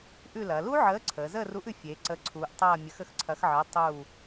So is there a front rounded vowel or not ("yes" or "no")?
no